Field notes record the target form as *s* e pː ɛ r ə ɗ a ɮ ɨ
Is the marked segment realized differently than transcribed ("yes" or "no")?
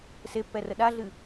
no